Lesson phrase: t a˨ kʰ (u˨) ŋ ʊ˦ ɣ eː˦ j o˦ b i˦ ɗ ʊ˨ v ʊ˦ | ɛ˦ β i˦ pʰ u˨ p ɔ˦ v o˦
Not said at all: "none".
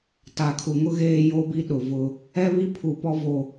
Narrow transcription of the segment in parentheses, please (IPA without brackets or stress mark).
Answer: u˨